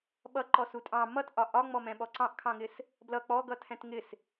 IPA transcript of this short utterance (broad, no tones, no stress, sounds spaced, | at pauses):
ɓ ʌ ǃ ɔ s u tʼ ɑ̃ m ʌ t ʔ ɒ ʔ ɒ ŋ͡m ɔ m ɛ̃ ɓ ɔ ǀ ɑ̃ ʔ kʰ ɑ̃ ŋ ɪ s | b l ʌ k͡p ɔ ɡ ʌ tʰ ɛ̃ t ŋ ɪ s